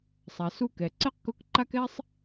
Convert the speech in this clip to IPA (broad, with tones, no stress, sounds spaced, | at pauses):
sˤ a˩ s u˧ k ɛ˩ ǀ ɛ˥ q k ʊ˧˥ k ǃ a˥ k ɛ˥ sˤ